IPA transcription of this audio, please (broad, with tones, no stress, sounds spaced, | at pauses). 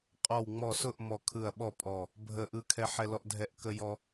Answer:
qʼ ɔ˧˩ w ŋ͡m ɔ˧˩ s ʊ˥˨ ʔ m ɔ˧˩ kʰ ɯ˧˩ ɐ̯ ɓ ɔ˥˨ pʼ ɔ˧˩ | bʱ ə˧˩ ʔ ɯ˦ kʰ ɛ˦ ħ ɛ˦ l ɔ˦ ʔ dʱ ɛ˦ ʔ k ə˦ j ɔ˦